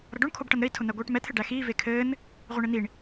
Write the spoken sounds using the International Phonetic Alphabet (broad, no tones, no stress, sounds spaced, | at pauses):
ɾ ʌ ɖ o ɳ kʰ o b ʈ ʌ n ɾ ɘ i̯ tʰ ʊ n̪ æ ɡʷ iː ʈ m ɛ t̪ʰ ɘ ɖ æ x iː v e kʰ ɘː n | ʁʷ e ɳ e n̪ i ɳ